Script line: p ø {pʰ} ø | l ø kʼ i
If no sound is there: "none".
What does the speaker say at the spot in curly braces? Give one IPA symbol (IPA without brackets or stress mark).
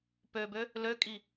b